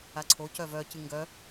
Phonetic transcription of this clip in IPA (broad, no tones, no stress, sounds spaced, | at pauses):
a ǀʰ o c œ v œ c ɨ ŋ ɡ œ